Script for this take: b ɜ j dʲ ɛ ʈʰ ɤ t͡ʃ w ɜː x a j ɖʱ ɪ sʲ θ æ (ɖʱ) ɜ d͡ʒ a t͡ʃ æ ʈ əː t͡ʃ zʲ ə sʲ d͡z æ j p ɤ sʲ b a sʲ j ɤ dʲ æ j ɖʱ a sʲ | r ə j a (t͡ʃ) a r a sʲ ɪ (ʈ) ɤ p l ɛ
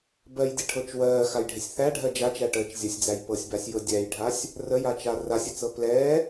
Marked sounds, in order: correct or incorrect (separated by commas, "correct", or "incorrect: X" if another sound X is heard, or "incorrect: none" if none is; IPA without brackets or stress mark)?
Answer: correct, correct, incorrect: t͡s